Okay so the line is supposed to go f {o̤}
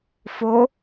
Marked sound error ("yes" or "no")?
yes